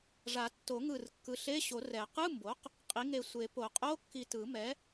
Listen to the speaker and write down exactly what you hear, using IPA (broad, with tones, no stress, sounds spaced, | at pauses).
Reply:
ʐ a˨˩˦ tː o˨˩˦ ŋ ɯ˧˩ r kː ɯ˩˥ ɬ e˧˥˧ ɕ o˨˩˦ r ɛ˨˩˦ q ɯ˧˥˧ m b o˩˥ q | qʼ i˩˥ ŋ e˧˩ sʷ e˨˩˦ p o˨˩˦ qʼ o˧˥˧ kː i˧˩ t ɯ˨˩˦ m ɛ˩˥